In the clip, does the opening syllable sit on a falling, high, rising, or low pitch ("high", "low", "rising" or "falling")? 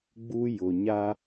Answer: high